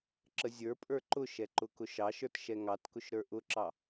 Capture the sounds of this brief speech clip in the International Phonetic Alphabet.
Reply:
ǁ ə zʲ ə˞ pʼ ə˞ ǃ ʊ ʃ ɛ ǃ ʊ k ʊ ʃ ɑ ʃ ə˞ t ʃ ɛ ŋ ɑ t k ʊ ʃ ɾ ə˞ ʔ ʊ ǁ ɑ

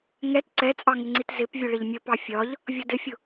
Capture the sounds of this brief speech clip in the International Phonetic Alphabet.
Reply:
ŋ ɛ t ǀ ɛ t͡sʼ ɑ ŋ ɪ ŋ͡ǀ i t z ɪ p vʲ ʊ ɭ ɪ ʎ mʲ ə p ɑ fʲ ɒ ʎ | vʲ ʌ d ɪ fʲ ʊ

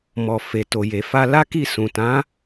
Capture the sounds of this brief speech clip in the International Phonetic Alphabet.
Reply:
m ɔ˨ f e˨ t o˨ j e˨ f a˧ l a˦ k i˦˨ s ũ˨ t ã˨˦

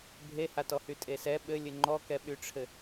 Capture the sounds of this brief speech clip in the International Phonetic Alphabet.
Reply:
bʱ e h a t ɔ h y tʼ e s ɛ ɓ ɘ lʲ ɘ ŋ͡ǃ ɔ k ɛ ɓ y ʈ͡ʂʰ ɘ

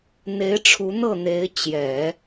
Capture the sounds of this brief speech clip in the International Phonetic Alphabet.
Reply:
n̪ e˧˥ ɪ̯ ʈ͡ʂʰ u˧˥ n̪ ɤ˥˩ n̪ e˧˥ ɪ̯ t͡ɕ j ɛ˨˩˦

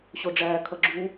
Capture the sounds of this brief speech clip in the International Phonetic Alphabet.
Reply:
ɕ o ɖ͡ʐ æː kʰ ʌ ɡ͡ǁ u

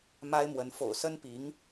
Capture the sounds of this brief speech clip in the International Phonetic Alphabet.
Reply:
m a˥ ɪ̯ m w ə˧˥ n f o̰˨˩ ʊ̯ s ə˥ n p i˧˥ ŋ

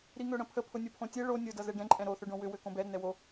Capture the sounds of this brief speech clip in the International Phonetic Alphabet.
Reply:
ɾ i ŋ ø ɽ ə̃ pʰ ə pʰ ʊ nʲ ʊ pʰ õ tʲ ɛ ɭ o nʲ ʊ d ʌ z ɛ ɖ ɛ̃ ǃʼ ɛ̃ ɾ o θ ʏ ɖ õ w ʏ w ø k õ b ɛ ɾ ə n ɛ w o

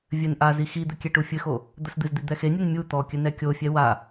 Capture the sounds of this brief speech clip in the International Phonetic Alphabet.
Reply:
vʲ ɘ n ʔ a z i x i d̪ ɘ kʲ ɛ ʈ u fʲ ɘ x o | d̪ ɐ s d̪ ɨ z d̪ i d̪ ɛ x e nʲ u n mʲ u t̪ ɔ kʲ ɘ n ɛ kʲ o fʲ ɛ w a

